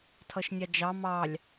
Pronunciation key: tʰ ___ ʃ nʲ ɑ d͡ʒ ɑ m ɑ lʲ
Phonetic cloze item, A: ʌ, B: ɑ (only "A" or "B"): A